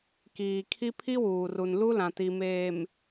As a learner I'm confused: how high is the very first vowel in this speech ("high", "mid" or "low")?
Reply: high